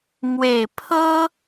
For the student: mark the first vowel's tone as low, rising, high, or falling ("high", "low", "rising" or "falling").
low